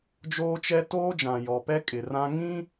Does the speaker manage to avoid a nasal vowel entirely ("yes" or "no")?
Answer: no